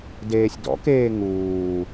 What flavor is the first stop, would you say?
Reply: plain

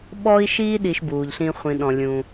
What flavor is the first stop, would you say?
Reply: implosive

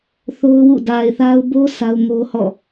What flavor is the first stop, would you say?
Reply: plain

